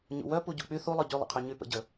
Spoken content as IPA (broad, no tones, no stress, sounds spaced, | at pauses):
ɲ ṵ w œ p u ɟ u k͡p y θ u lˠ œ ɟ y lˠ ə̰ qʰ y ɲ y p ə̰ ɟ ə